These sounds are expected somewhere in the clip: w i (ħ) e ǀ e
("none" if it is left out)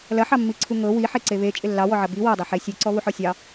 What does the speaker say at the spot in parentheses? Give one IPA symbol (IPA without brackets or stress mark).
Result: ħ